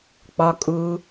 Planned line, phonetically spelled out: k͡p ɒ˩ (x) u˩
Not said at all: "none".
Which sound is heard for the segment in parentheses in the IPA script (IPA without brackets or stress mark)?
kʼ